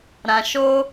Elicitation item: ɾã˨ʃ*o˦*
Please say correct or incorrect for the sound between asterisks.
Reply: correct